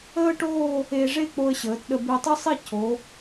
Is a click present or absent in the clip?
absent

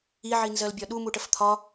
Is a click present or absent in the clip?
absent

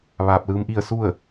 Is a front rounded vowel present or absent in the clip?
absent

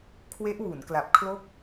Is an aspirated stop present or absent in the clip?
present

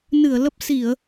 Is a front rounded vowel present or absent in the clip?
absent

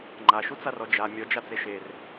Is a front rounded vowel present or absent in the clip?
absent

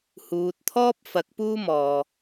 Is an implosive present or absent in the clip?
absent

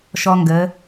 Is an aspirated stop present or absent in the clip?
absent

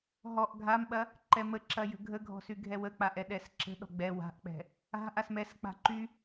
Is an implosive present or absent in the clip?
present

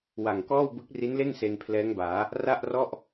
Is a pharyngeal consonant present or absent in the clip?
absent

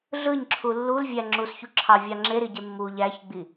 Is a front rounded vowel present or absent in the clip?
absent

